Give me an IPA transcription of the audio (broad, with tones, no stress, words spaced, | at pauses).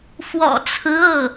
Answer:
fwɔ̰˨˩t͡sʰɹ̩˧˥ ɤ˥˩